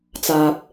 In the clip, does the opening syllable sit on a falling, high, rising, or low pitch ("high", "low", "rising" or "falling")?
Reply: low